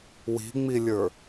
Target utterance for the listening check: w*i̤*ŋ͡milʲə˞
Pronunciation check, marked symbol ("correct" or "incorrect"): correct